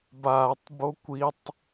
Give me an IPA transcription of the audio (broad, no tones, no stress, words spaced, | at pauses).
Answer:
baːtˤbo kʷitˤ